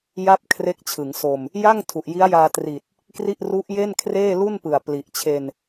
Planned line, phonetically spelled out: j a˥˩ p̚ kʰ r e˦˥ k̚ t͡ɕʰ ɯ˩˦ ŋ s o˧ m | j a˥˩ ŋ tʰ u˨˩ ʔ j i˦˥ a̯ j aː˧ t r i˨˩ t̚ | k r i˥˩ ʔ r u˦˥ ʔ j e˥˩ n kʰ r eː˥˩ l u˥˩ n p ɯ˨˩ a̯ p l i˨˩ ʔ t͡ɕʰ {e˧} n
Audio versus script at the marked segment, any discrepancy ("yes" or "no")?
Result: no